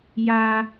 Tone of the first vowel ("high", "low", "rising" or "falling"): low